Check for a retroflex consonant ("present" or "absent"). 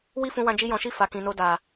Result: absent